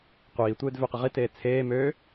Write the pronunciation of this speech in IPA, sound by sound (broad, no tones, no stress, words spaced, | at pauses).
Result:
qʷiːtʷeːd vøqəʁiteː t͡sʰeː møː